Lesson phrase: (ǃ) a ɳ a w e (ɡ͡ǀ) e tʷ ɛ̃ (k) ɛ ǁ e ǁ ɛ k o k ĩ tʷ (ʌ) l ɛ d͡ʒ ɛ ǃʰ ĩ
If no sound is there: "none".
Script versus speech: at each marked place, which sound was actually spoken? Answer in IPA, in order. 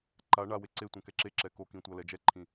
ǃ, ǀ, k, ʌ

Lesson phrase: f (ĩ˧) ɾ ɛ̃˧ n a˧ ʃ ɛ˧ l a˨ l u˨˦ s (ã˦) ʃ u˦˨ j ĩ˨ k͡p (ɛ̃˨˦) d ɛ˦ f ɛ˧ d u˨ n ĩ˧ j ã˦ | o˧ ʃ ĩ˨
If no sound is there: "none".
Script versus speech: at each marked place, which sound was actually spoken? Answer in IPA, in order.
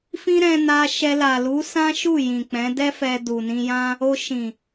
ĩ˦, ã˦, ɛ̃˨˦

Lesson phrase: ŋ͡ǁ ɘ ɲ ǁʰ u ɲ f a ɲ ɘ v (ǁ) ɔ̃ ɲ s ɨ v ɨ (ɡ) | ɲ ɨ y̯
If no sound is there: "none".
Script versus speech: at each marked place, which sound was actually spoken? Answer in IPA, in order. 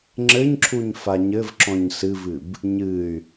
ǁ, b

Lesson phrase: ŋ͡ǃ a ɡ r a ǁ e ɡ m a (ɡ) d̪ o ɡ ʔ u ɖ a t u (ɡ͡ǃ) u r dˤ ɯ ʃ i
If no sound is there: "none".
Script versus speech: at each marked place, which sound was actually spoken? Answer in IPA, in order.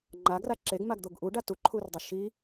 ɡ, ǃʰ

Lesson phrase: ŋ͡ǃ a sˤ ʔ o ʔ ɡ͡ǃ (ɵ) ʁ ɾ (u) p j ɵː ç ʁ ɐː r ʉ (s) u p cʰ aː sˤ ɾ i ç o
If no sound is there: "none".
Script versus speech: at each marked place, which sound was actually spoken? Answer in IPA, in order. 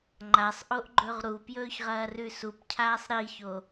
ɵ, u, s

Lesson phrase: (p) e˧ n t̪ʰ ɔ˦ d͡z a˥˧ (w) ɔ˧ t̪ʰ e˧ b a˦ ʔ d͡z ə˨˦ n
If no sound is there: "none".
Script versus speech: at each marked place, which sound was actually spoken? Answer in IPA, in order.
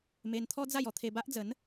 m, j

